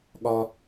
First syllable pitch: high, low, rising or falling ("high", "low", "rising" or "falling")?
high